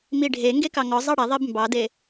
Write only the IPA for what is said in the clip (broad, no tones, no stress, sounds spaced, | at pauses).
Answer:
m i ɖʱ e ŋ ɡ e k ɑ ŋ ɔ zˤ ɑ ɽ ɛ ðˤ e b m b ɑ d e